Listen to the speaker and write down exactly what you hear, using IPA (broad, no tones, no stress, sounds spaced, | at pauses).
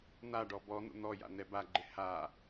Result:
n̪ a ɖ ɔ b ɔ n̪ ṵ n̪ ɔ j a̰ n̪ ɛ b a ɡ͡ǃ ɪ h a